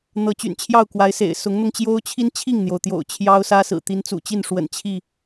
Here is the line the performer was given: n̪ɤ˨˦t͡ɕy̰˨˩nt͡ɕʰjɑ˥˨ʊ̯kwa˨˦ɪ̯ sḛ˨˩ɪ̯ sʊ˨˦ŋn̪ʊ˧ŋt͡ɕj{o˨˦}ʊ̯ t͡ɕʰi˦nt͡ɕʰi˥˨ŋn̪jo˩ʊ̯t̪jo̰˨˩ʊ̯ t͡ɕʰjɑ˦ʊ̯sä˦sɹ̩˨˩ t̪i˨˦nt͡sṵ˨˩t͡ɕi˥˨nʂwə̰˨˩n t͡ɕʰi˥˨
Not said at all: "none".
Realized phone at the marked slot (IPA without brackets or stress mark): o˦